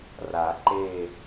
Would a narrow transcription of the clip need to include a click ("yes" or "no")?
yes